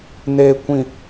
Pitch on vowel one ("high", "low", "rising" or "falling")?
low